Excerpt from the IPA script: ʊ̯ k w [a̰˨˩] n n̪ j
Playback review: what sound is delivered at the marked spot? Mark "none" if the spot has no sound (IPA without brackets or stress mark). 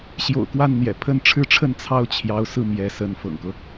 a˥˩